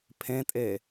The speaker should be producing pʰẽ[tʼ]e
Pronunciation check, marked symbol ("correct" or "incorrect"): correct